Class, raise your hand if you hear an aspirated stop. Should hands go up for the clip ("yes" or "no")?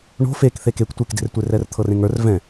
yes